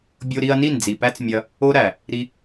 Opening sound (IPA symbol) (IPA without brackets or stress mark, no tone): bʲ